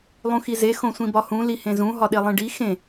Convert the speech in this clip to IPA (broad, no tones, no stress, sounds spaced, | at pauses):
lˠ ũ x i z e x õ sʷ ĩ b ɒ h ũ l i h ẽ z ũ ɦ ɒ ɗ e lˠ ẽ ɖ i x ẽ